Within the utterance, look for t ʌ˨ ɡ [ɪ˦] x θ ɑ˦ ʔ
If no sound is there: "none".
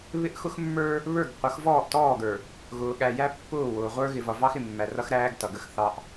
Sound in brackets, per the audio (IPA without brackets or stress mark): ə˦